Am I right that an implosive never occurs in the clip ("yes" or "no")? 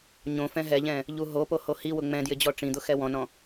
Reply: yes